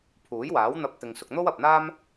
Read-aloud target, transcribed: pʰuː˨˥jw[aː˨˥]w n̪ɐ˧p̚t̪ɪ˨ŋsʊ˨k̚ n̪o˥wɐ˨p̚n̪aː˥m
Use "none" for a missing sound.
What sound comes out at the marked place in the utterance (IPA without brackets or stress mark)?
aː˨˥